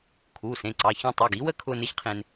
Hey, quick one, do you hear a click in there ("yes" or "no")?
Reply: yes